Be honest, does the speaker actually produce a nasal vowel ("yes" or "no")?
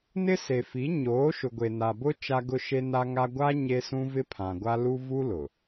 yes